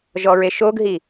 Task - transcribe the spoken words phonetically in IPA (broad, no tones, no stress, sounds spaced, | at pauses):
ʒ ɔ ɹ e ʃ o ɡ ɦ i